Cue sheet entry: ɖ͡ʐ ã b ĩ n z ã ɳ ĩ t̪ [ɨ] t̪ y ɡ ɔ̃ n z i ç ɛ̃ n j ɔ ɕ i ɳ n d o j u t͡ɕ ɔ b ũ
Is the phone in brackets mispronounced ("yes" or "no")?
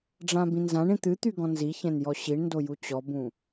no